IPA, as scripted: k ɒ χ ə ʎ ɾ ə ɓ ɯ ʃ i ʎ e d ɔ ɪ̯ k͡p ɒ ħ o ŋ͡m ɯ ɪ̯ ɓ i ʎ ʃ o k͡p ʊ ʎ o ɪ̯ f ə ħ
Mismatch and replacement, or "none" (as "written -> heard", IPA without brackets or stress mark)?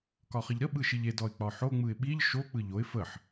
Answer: ʊ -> ɯ